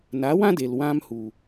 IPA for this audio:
n a˨˦ w ã˦ d e˨ l w ã˧ m h u˨

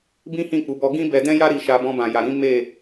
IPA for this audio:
b ĩ˦ h ĩ˦˨ k͡p u˨˦ b ɔ˧ ɡ ĩ˦ b ɛ˧ d ɛ̃˦ j a˦ ɾ i˧ ʃ a˧ b ɔ̃˧ b ã˨ j a˨ ɾ ĩ˨˦ m e˦˨

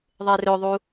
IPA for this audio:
ðˤ e r ɵ ðˤ u

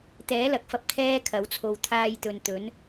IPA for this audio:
t̪ ɛː˨˥ l ɐ˨ k̚ f ɐ˧ p̚ t̪ʰ ɛː˥ kʰ ɐ˨˥ w t͡sʰ o˧ w t̪ʰ aː˥ j t̪ ɵ˧ n t̪ ɵ˨˥ n

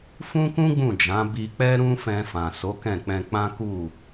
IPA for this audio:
f ũ˦ k ũ˦ ɡ͡b ũ˦˨ d͡ʒ ã˨˦ b i˧ k͡p ɛ˦ ɾ ũ˦ f ɛ̃˧ f ã˨ s o˨˦ k ɛ̃˦˨ k͡p ɛ̃˧ k͡p ã˦ k u˦˨

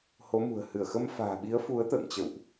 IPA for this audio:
h o˨˦ m ṳ˨˩ ə̯ h ɨ˧˩ ə̯ x ə˧ m f a̤ː˨˩ ɓ i˨˦ ə̯ f u˨˦ ə̯ t̪ ə̰ː˧˨ ŋ t͡ɕ ə̰˧˨ w ʔ

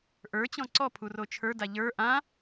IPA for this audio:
ʔ ə˞ t͡ɕ ɔ̃ ǀ ɔ pʰ u r o t͡ʃʰ ə˞ d a ʎ ə˞ ʔ ã

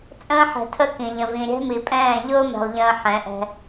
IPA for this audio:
t͡sʼ ə̃ː˦ ħ ɛ̤˨ tʰ ə˦ k ĩ˨ ʎ ə̃˨ v ĩ˨ ɾʲ ɛ̤˦ m i˨ pʼ ɛ̃ː˦˨ ʎ ʊː˦ m ɛ̤˨ lˠ ʎ ə̃ː˨ ħ ɛ̃˨˦ ʔ ɛ̤˦

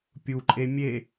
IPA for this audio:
pʲ u ǃʼ e mʲ e

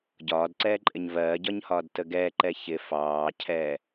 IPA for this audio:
ɟ ɒː d ǀ ɛː ǃʼ ɪ ɲ v ɜː ɟ ɒ ɲ h ɒː d t ə ɡ ɛː ǃ ɛ ç ɪ f ɑː cʰ ɛː

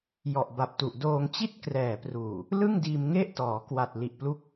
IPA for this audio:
j ɔ˨˩ ʔ b a˨˩ p̚ t u˨˩ ʔ d oː˧ ŋ t͡ɕ i˥˩ t̚ k r ɛː˨˩ p r uː˨˩ | l ɯ˥˩ ŋ d iː˧ m ŋ e˥˩ ʔ t ɔː˩˦ k w a˨˩ t̚ l i˨˩ ʔ p l u˦˥ k̚

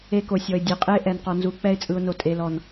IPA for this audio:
e˧ k o˨ sʲ ɔ˨ ɪ̯ dʲ ɛ˨ qʼ e˦ ʔ ɛ˨ n q ɔ˨ n z u˨ k͡p ɛ˧ ɪ̯ t͡sʼ ɯ˨ ʊ̯ n o˨ tʼ e˨ l ɔ˨ n

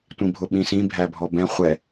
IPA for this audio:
tʷ ĩ bʱ ʊ ɓ ĩ s ĩ bʱ æ bʱ ɔ b ɛ̃ χʷ ɛ

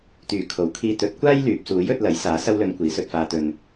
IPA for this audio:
t̪ yː˨˩ kʰ o˨˩ w kʰ iː˧ t̪ ɵ˨˥ t̚ kʷ aː˥ j l yː˨ p̚ s uː˨˥ j ɵ˨˥ t̚ l ɐ˨˥ j s aː˨˥ s ɐ˧ w l ɵ˨˧ n kʷ iː˨˥ s ɵ˧ t̚ f aː˧ t̪ ɵ˨ n

